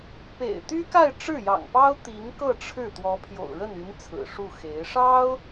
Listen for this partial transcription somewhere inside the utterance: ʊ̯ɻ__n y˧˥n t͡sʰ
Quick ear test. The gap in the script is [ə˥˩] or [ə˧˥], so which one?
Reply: ə˥˩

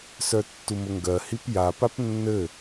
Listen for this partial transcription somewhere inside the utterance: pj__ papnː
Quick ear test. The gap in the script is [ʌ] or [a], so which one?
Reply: a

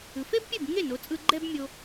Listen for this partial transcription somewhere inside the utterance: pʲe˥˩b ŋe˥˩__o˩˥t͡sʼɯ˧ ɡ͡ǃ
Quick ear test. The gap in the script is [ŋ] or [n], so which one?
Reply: n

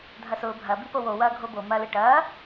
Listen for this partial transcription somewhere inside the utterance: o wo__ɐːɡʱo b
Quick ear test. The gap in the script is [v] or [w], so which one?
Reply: w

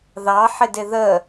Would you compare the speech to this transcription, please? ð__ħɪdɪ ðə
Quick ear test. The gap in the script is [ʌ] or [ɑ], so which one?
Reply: ɑ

